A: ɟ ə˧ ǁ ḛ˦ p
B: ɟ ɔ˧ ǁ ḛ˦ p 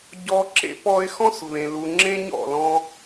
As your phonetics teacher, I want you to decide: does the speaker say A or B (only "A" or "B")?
B